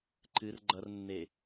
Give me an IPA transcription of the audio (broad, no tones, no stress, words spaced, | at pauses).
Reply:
ǃɨr ɡ͡ǃʌrnːe